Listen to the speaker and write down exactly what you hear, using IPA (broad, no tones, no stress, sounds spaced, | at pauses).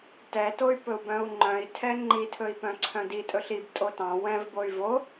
t ɛ t o y̯ p ɵ u̯ b œ̃ u̯ ŋ͡ǃ œ̃ i̯ tʰ ɛ ŋ͡ǃ i tʰ ɵ i̯ p œ̃ ǀʰ œ̃ d i tʼ ɵ ɬ i b tʼ o t ɑ̃ w ɛ̃ v b o y̯ v o